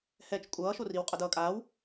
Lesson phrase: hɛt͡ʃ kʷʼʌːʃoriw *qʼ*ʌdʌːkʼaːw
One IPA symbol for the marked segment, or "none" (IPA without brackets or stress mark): qʼ